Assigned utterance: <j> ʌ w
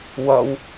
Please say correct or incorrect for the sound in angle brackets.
incorrect: w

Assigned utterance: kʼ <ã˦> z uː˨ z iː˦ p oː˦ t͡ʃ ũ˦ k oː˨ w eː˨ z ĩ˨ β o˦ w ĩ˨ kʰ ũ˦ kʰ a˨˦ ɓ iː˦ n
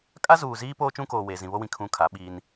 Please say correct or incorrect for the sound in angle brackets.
incorrect: a˦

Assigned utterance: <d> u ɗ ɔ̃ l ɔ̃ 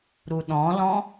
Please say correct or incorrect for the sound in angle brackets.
incorrect: ɾ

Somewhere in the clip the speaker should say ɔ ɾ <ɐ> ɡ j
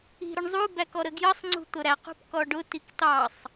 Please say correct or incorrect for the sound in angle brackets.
incorrect: ə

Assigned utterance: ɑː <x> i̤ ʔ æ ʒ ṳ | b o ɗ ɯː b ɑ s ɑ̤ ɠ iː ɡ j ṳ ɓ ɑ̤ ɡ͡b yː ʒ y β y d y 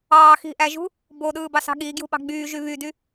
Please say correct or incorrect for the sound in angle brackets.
correct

